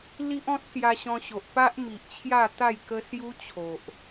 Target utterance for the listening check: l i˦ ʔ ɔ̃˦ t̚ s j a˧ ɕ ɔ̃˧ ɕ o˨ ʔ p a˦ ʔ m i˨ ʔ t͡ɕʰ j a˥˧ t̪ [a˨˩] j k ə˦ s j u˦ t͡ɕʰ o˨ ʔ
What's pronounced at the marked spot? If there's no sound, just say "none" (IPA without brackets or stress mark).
a˥˧